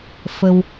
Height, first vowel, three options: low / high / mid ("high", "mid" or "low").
mid